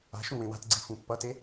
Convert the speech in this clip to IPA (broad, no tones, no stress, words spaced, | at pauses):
a̤ʃũ wẽwa̤tɡ͡ǀi fũpːʌte